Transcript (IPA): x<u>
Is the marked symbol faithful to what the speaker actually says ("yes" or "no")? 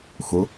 no